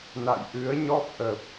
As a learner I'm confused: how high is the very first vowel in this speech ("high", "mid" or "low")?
low